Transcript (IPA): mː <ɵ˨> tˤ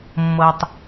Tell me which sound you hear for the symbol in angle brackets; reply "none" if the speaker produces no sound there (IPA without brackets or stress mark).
ɤ˨